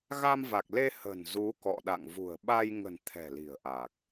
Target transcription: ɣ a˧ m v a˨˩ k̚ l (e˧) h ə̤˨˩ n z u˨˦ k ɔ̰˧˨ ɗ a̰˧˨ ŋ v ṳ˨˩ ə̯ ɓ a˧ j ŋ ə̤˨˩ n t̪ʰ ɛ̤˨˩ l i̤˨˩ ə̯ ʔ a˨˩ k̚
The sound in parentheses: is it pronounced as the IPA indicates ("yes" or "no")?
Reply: yes